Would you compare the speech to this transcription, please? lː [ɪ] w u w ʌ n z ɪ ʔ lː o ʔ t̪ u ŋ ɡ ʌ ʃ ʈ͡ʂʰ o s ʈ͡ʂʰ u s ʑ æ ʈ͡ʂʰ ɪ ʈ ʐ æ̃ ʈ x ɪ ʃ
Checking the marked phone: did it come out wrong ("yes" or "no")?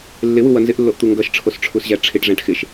no